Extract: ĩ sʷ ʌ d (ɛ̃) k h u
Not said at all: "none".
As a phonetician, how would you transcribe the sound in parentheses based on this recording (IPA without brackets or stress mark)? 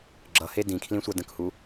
ə̃